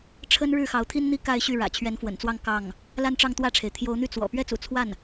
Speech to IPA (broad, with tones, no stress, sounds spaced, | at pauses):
ʈ͡ʂʰ ə˥ n ɻ ɻ̩˥˩ x ɑ˧˥ ʊ̯ t̪ʰ i˥ n n̪ i˥ k a˥˧ ɪ̯ ɕ y˥˩ ɻ ä̰˨˩ t͡ɕʰ ɥ ɛ˧˥ n f w ə̰˨˩ n t͡s w ɑ˥˧ ŋ k ɑ˥˩ ŋ | l a˥˧ n ʈ͡ʂ ɑ˥˧ ŋ t̪ w ä˥˩ ʈ͡ʂʰ e˩ ɪ̯ t̪ʰ j o˧˥ ʊ̯ n̪ y˥˩ t͡s w ɔ̰˨˩ p ɥ ɛ˥ t͡s ṵ˨˩ t͡sʰ w a˥˩ n